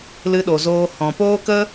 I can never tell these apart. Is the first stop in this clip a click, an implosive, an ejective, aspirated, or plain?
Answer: implosive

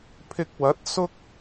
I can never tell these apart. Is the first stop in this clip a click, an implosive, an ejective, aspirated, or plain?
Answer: aspirated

